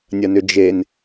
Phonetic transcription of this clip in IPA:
nʲ ɐ n ʏ d͡ʒ e n

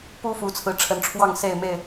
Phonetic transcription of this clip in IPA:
p u˦ f u˨˦ t͡sʰ ɹ̩˨˦ ʈ͡ʂʰ ə˨˦ n ʈ͡ʂʰ w ɑ˥˨ ŋ s e˥˨ ɪ̯ m e˥˨ ɪ̯

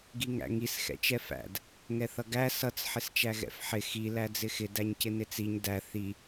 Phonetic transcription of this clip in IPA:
ɡ i ŋ æ̰ ŋ i s x ɛ̰ t͡ʃ ɛ f æ̰ d | ŋ ɛ θ ʌ ɡ æ s ʌ t͡s ħ ɪ s t͡ʃ æ ɣ ɛ̰ f ħ ɪ x i l æ d͡z ɪ x ɪ d æ ɲ c ɪ n ɪ t͡s i ɲ d æ θ i

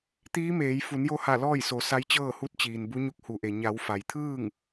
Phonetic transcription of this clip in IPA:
t̪ iː˧˥ m eː˩˧ j f u˩˧ n j o˧ h a˧˩ l ɔː˥˨ j s o˩˧ s a˧˥ j t͡ɕ ɤː˥˨ h u˧˥ t̚ t͡ɕ iː˩ n b u˧˥ ɲ u˧˥ k̚ h u˩˧ ʔ e˩ ɲ a˩˧ w f a˩ j t̪ʰ ɯː˥˨ ŋ

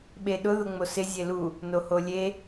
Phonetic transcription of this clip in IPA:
ɓ e ɗ ʊ ð ʊ ŋ͡m o s ɪ zʲ e l u | n o h o lʲ e

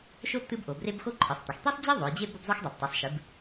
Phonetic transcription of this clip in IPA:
ʃ o˥ t̪ ɨ˥ b ʔ o˩˧ b r e˥ b x o˥ ǃʰ ɨ˩˧ sˤ t̪ ɐ˩˧ x t̪ i˥ sˤ d͡ʑ e˥ ðˤ o˩˧ j d͡ʑ e˥ b o˥ b zˤ o˥ x dˤ e˩˧ p tˤ ɨ˩˧ sˤ ʃ ɨ˩˧ b

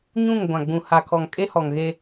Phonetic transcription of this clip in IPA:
ɲ ũ˦˨ ŋ ɡʷ ã˨ ɡ͡b ũ˨ h a˨ kʰ ɔ˨ ŋ kʼ e˦ h ɔ˨ ŋ ɣ e˦

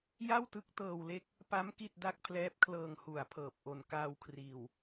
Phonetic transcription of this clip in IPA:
j a˥˩ w t ɯ˦˥ k̚ t ɤː˧ w l e˦˥ k̚ | p a˦˥ m k i˥˩ t̚ d a˥˩ k̚ pʰ l ɛː˦˥ p̚ kʰ l ɤː˧ ŋ h u˨˩ a̯ pʰ ɤː˨˩ p̚ ʔ o˨˩ n k aː˧ w kʰ r iː˨˩ w

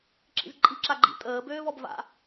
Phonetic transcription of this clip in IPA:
ǁ ḭ z ǃʼ i ǁ a ɡ͡ǃ ḭ tʼ əː b øː v ɔ b v a̰

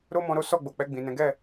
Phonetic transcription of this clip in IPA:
ɾ o˦ m ɔ̃˧ ɾ o˦ s ɔ˦˨ ɡ͡b o˨ k͡p ɛ˧ ɡ͡b ĩ˨ n ɛ̃˨˦ ɡ ɛ˦˨

